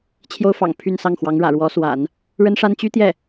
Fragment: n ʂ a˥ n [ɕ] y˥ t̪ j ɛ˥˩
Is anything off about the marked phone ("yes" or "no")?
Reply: yes